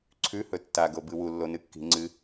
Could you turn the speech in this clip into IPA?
ǀʰ ʉ h ɵ tː a ɡ o b ɨ w u lː o n ɨ kː i̤ ŋ͡ǀ ɨ

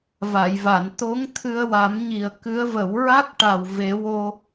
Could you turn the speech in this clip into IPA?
v a˨˩˨ j v a˨˩˨ n t̪ o˧˥ ŋ t̪ʰ ɨ˧ ə̯ w a˨˩˦ m ɲ i˨˩ ə̯ k ɨ˧˥ ə̯ v ə˨˩˦ w ɹ a˦˥ k̚ ʈ a˨˩ w v e˨˩˦ w o˧

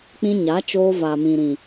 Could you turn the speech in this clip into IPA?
k͡p ĩ˧ ɲ a˨˦ t͡ʃ oː˧ v a˨ m ĩ˨ ɾ ĩ˨

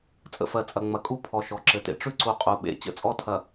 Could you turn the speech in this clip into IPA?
t͡sʼ ə̰˨ f ɜ˨ t͡sʼ ɐ˨ ŋ͡m ɐ˨ kʼ u˦ pʰ ɔ˨ ʃ ɔ˨ ǁ ɘ˨ t ḛ˨ ʈ͡ʂ ʉ˦ ǀ u˨ qʼ u˨ ɓ ḛ˨ t͡ɕ ə̰˦ t͡sʼ ɔ˦ tʰ ɐ˨

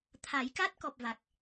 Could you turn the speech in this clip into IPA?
t̪ʰ a˨˩˦ j k a˦˥ t̚ k ɔ˨˩ p̚ v a˨˩ k̚

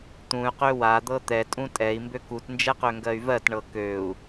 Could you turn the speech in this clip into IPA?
t̪ ũ y̯ q ø w a d̪ ɤ t̪ ɛ tʼ ũ tʼ ɛ i̯ m b ø k u t n d͡ʒ ɛ q ø ŋ ɡ ɜ y̯ v ɜ t ɳ ɤ k ø u̯

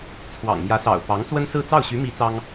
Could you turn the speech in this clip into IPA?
t͡sʰ w ɑ̰˨˩ ŋ m j ä˧˥ s ɑ̰˨˩ ʊ̯ p ɑ˧˥ ŋ t͡s w ə˥ n s ɹ̩˥˧ t͡s ɑ˥˩ ʊ̯ ɕ y˧˥ m i˧˥ t͡s ɑ˥ ŋ

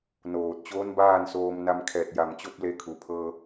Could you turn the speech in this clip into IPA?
n oː˧˩ t̚ t͡ɕ oː˧˥ n b aː˥˨ n s oː˧ m n a˧ m kʰ ɛː˧˩ t̚ j a˧˩ m t͡ɕ o˥˨ p̚ l e˧ kʰ u˩ pʰ ɤː˧

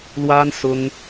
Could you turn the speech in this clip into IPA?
l w a˥ n s ʊ˥ ŋ

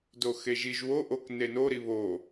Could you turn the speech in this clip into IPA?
d o x e ʒ i ʒ w o ʔ o k n e n o ɾ i β o

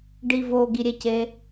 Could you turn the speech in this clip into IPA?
ɖ i v o ɡ i ɾʲ e c e

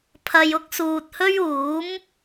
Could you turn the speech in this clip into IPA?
pʰ ɐ˧ j ʊ˥ k̚ s uː˨ t̚ h ɵ˥ ɥ uː˨˥ m

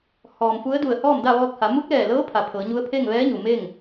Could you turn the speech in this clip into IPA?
h ɔː˩ m f u˧˥ ə̯ d u˧˩ ə̯ h ɔː˥˨ m d a˥˨ ʋ ɔː˧ k̚ h a˩˧ m u˧˥ k̚ l ɛː˧˩ l ɤː˧˥ pʰ a˩˧ pʰ ɤː˩˧ ɲ u˧˥ ə̯ pʰ e˥˨ ŋ ʋ ɛː˧˥ ɲ u˩ m e˥˨ ŋ

